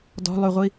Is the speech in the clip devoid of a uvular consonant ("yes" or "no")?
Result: no